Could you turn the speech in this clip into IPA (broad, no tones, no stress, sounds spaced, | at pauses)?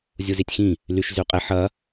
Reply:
zʲ u z i tʲ x ĩ | l y ʃ z y qʼ e ħ ɐ